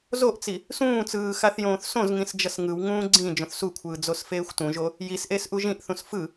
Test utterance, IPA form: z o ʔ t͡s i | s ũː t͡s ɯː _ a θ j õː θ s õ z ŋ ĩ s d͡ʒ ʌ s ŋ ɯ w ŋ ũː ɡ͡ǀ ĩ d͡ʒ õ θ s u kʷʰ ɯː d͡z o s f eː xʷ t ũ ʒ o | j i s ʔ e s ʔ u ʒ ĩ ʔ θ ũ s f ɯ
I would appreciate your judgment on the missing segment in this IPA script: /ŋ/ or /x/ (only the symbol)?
x